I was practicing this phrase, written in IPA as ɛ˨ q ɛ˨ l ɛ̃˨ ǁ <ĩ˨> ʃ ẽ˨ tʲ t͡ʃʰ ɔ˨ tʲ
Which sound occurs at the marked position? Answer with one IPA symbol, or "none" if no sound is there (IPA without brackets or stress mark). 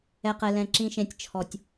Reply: ĩ˨